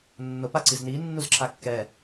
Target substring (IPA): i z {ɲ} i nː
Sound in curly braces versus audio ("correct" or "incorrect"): incorrect